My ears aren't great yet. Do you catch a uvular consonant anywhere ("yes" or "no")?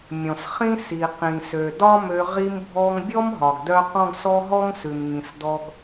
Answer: yes